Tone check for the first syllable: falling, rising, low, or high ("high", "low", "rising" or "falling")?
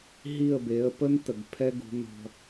falling